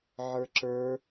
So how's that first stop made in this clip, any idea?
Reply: click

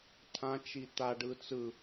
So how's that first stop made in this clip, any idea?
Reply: aspirated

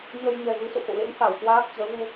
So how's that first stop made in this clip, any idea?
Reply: plain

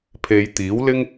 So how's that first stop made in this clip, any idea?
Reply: aspirated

